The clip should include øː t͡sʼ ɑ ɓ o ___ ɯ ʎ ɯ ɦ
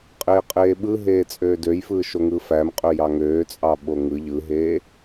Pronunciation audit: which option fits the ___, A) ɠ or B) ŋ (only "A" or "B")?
B